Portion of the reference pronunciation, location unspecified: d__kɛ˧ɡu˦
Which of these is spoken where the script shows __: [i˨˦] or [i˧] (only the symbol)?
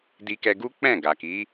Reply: i˧